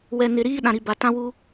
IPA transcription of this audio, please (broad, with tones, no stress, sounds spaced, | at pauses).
w ɛ˨ n ɪ˨ ɾ iː˦ ɗ ã˨ ɾ i˨ b a˨ t ã˦ w uː˦